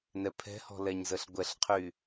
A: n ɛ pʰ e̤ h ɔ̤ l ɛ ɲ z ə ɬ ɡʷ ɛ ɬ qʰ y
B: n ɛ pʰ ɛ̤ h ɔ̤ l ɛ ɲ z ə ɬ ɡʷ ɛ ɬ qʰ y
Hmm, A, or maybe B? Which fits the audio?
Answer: B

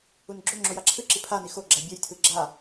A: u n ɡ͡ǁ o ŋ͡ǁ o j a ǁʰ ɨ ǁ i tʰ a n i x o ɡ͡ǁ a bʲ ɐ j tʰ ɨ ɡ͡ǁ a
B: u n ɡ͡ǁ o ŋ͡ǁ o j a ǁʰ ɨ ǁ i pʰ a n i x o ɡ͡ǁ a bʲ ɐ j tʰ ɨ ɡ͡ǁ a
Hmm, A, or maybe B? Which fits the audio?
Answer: B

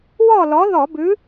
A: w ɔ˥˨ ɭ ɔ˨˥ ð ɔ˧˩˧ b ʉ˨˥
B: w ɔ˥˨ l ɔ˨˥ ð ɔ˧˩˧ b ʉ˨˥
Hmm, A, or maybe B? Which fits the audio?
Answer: B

